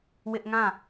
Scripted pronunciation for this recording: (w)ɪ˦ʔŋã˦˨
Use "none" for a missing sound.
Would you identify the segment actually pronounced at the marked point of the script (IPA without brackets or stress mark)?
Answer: w